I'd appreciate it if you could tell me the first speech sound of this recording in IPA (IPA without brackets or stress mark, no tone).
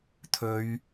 t̪ʰ